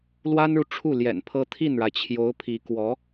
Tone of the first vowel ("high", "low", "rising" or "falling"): high